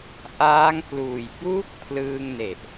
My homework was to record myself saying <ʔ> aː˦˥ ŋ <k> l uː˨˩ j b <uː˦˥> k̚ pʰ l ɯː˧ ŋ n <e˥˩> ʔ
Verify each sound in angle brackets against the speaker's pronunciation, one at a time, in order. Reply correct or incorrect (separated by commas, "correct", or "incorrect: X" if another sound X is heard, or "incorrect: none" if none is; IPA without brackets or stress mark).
correct, correct, correct, incorrect: e˨˩